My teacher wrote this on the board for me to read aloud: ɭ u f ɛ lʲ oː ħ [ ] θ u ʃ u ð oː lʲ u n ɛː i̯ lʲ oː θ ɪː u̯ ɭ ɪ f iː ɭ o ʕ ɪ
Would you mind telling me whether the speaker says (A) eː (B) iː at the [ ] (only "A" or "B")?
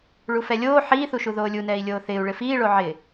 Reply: B